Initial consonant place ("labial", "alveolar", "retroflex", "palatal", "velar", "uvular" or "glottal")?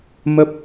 labial